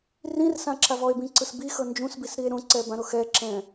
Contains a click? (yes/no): yes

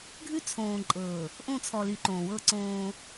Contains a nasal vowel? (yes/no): yes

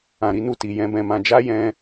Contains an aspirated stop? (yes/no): no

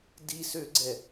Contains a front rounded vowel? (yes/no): yes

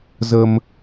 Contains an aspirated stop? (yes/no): no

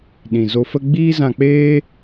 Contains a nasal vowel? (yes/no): yes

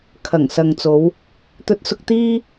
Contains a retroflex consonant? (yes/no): no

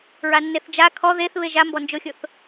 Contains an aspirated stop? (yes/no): yes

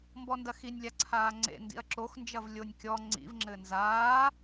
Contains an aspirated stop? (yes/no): yes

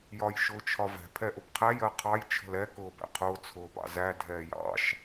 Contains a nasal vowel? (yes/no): no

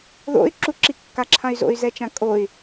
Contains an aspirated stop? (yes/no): yes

